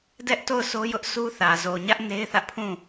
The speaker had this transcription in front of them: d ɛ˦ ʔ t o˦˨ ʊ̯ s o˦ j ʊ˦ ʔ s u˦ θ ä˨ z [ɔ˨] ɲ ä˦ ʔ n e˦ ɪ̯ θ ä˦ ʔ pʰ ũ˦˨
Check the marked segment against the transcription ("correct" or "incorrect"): incorrect